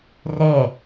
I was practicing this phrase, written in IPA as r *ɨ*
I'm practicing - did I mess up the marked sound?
yes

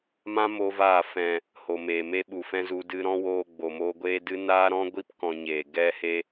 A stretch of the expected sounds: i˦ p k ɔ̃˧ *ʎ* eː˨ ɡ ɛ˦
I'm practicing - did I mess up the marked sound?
yes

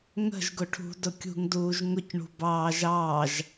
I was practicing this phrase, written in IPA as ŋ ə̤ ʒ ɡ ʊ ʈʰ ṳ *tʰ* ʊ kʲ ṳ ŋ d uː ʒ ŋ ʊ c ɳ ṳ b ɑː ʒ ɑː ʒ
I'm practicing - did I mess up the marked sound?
yes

